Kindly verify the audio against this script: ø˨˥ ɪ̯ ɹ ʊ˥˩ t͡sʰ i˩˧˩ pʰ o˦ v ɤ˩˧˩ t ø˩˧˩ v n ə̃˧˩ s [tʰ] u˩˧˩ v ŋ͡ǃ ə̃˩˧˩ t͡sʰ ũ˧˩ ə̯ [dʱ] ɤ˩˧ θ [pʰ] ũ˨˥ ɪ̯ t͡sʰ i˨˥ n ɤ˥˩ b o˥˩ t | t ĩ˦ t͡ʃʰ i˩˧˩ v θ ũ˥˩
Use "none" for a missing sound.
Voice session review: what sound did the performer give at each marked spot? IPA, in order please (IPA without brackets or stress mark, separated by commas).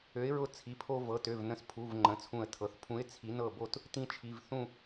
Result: pʰ, tʰ, pʰ